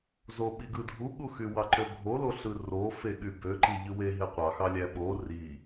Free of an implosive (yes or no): no